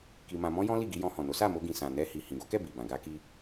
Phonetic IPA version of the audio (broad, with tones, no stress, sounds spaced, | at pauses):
k i˧ m ã˧ m ɔ̃˦ j ɔ̃˦ l i˦˨ ɡ i˧ j ɔ̃˧ h ɔ̃˨ n o˨˦ s a˦˨ m o˧ ɡ ĩ˨ s ã˨ n ɛ˧ h i˨ h ĩ˨ ɡ o˨˦ k ɛ˦˨ b i˨ b ã˨ ɡ a˧ k i˧